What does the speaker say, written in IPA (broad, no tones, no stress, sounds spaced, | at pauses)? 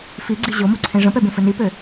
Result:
f i ɡ͡ǀ i ʑ o m o ǀʰ ẽ ʐ ə̃ p ɛ b ẽ f ɘ n i p ø